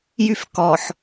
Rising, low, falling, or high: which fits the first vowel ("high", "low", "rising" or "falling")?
high